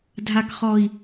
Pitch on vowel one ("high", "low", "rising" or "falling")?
low